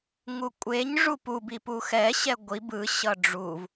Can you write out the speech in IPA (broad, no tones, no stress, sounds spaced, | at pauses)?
ŋ u kʷʼ e ɲ ʐ u p u b i p u x ɛ ɕ ɛ ɡʷ i b ɯ ɕ ʌ ɖ͡ʐ u v